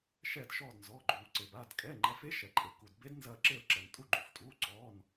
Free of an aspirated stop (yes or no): yes